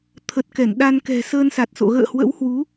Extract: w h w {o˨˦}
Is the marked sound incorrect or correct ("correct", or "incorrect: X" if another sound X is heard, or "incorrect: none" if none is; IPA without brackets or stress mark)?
incorrect: u˨˦